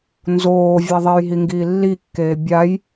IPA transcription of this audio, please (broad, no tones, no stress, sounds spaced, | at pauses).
n z oː vʲ a ðˤ e j ɦ i ŋ ɡ iː lː i kː eː bʲ a j